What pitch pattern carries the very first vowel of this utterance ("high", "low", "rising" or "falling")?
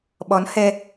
rising